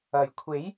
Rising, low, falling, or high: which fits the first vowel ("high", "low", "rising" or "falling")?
low